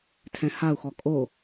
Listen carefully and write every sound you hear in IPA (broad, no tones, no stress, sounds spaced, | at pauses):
tʰ ɛ̃ h a u̯ x ɔ kʼ o